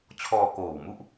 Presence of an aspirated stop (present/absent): present